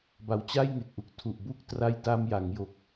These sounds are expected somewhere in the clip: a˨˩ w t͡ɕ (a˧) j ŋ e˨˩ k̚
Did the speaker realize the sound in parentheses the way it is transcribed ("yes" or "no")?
no